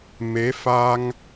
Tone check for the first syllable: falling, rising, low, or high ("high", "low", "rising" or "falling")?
rising